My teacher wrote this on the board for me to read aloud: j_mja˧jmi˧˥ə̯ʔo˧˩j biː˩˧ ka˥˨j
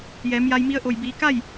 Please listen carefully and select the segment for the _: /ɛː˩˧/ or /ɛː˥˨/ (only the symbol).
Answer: ɛː˩˧